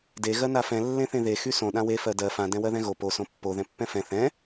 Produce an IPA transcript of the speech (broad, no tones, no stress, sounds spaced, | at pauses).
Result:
d e ɣ ɜ n a f ɛ̃ lː ẽ θ ẽ ð e x y s õ ɗ ã w e f ɜ d ɜ f ã d ɛ̃ w ɜ ð ɛ̃ ɣ o p o s õ pː o ð ɛ̃ pː ɛ̃ f ɛ̃ θ ɛ̃